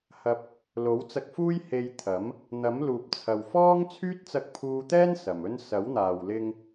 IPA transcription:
h ɐ˨ p̚ | l o˨˥ w t͡s ɐ˧ k̚ f uː˥ j h e˧ j t̪ʰ ɐ˨˥ m | n̪ ɐ˨˥ m l uː˨ p̚ t͡sʰ ɐ˨ w f ɔː˥ ŋ t͡sʰ yː˥ t̚ t͡s ɐ˧ k̚ pʰ uː˧ t̪ ɛː˥ n s ɐ˨ m ɵ˥ n s ɐ˨˥ w n̪ aː˨ w l ɪ˧ ŋ

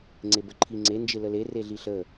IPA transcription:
ŋ͡ǀ e b ə ǃʰ i ŋ͡ǀ e n d͡ʒ ɪ l ə l e r e ɮ i ɬ ə

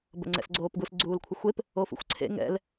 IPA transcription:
b ə̰ ŋ͡ǀ ɛ̰ s ɡ͡ǀ oː p ɡ u s ɡ͡ǀ uː l kʷʰ ə xʷ e p | o f ṵ xʷ ǀʰ ḛ ŋ ɛ̰ l

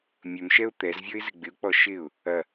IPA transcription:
mʲ ɵ m ʃ ɛ ʊ̯ t̪ ɛ z vʲ ɔ ɪ̯ z ɪ ɡ͡b ɪ ʊ̯ k͡p ɔ ʃ ɪ ʊ̯ | ɐ

